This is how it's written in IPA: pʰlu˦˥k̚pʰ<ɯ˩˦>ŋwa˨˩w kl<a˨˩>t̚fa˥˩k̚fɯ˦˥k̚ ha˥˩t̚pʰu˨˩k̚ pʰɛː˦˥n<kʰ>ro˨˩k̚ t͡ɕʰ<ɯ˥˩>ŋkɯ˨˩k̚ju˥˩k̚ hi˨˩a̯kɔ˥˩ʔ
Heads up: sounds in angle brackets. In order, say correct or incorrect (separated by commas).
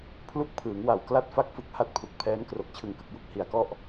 incorrect, incorrect, incorrect, incorrect